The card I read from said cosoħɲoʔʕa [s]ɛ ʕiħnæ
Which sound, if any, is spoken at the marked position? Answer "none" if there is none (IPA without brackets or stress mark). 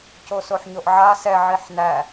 s